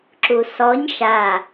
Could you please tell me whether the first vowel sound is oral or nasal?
oral